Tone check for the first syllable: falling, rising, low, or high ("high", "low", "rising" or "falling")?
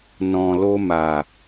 low